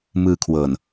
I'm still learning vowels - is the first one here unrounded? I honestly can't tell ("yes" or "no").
yes